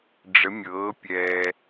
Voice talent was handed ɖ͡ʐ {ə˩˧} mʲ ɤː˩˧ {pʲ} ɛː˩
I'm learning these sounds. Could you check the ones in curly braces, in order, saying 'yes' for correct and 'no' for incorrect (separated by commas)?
yes, yes